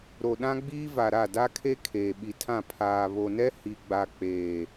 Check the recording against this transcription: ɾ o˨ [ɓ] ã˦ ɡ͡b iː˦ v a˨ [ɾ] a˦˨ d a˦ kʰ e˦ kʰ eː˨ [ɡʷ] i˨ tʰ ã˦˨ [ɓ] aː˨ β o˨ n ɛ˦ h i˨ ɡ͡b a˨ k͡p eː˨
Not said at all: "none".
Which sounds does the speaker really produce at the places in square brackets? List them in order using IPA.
ɗ, ɾ, ɓ, pʰ

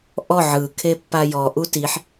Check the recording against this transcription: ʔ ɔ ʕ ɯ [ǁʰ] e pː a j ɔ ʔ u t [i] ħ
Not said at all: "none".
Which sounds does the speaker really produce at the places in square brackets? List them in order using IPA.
kʰ, i

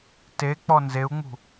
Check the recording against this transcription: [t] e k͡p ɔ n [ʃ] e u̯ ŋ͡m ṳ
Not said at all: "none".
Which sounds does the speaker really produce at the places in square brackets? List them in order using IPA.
t, z

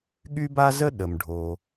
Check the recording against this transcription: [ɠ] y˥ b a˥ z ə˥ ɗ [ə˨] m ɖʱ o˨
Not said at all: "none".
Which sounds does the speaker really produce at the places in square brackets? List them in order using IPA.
ɠ, ə˩

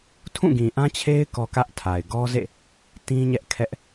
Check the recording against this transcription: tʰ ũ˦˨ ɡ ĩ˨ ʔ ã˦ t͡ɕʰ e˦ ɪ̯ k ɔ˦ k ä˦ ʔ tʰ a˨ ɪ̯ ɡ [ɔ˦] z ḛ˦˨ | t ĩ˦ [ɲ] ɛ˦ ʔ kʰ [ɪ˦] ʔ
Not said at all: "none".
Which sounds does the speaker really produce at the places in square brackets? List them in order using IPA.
ɔ˦, ɲ, ɛ˦

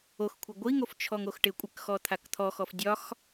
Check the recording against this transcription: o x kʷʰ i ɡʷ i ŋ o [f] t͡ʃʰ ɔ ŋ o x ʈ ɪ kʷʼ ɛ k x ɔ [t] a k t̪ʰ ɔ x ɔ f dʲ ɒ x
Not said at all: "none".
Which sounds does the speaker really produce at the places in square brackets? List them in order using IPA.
f, t̪ʰ

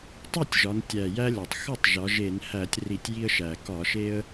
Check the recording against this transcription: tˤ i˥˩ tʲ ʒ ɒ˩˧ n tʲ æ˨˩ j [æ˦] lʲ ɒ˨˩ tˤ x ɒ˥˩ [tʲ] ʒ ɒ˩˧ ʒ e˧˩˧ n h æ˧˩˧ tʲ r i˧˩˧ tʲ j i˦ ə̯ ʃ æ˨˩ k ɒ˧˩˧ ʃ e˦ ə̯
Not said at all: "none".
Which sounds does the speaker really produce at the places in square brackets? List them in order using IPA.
æ˦, tˤ

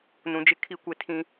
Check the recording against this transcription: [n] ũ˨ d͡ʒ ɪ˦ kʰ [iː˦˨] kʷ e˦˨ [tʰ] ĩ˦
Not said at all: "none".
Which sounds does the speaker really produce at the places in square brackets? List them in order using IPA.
n, i˦˨, tʰ

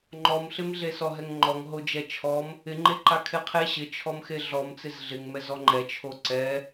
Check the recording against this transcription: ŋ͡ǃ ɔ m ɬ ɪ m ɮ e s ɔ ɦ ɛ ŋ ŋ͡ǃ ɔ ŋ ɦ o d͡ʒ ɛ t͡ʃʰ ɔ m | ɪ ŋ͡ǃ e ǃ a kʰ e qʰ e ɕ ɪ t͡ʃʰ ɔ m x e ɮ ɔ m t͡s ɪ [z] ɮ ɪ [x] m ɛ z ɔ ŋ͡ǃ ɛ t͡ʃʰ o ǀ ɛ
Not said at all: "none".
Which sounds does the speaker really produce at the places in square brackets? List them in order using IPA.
z, ŋ

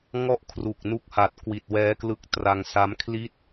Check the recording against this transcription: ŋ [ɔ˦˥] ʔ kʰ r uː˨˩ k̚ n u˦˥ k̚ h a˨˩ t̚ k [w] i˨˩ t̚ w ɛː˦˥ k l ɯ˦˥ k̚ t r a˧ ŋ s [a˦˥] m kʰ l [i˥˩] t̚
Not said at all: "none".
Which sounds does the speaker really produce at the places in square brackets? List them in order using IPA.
ɔ˥˩, w, a˦˥, i˥˩

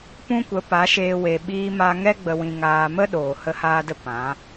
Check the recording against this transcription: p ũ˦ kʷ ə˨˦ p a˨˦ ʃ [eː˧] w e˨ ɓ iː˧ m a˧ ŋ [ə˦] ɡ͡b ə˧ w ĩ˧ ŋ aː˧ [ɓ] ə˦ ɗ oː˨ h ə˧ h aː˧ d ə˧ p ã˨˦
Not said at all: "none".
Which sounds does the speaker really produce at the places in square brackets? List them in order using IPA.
eː˧, ɛ˦, m

